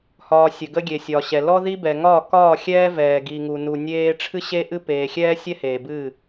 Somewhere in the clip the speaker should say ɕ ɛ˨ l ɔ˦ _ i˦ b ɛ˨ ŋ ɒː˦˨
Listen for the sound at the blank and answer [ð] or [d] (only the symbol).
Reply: ð